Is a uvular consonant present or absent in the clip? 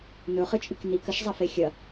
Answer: present